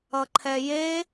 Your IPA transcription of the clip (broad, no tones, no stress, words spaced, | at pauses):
ʌǃʰɛje